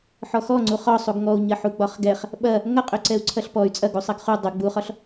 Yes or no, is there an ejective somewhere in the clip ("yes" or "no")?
yes